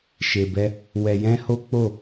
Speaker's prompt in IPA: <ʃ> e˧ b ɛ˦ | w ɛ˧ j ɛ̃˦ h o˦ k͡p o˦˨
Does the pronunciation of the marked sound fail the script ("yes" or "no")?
no